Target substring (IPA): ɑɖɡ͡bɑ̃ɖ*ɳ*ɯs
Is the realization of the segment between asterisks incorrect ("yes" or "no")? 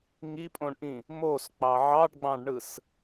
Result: no